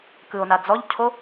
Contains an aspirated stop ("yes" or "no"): yes